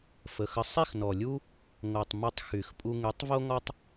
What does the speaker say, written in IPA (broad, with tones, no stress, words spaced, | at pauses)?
fə˨xə˧ sˤi˦˨xnɔ˨lʲu˦ | ŋo˨tˤ my˧tˤ xy˨x pʼu˧ŋy˨˦tˤ vo˦ ŋɔ˦tˤ